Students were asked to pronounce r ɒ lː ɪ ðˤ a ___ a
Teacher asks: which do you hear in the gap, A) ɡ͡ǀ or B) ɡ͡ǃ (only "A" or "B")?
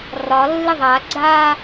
A